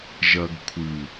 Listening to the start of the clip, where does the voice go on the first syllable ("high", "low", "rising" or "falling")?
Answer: low